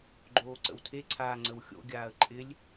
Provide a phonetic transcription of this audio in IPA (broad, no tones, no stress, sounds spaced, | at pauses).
ɡ͡ǃ oː ǀ ə̰ w tʰ e ǀʰ aː ŋ͡ǀ ə w xʲ o̰ ɡʲ aː ə̯ ǃʼ ɪ lʲ